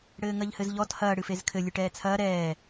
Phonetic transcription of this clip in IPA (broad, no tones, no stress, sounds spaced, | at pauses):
ɽ ɘː ŋ ɐ ʎ h ɘ z ʎ ɔ t h ɐː ɽ ɨ f e z kʰ ɘ lʲ ɨ ʈ ɛː t͡sʰ ɐː ɾ ɛː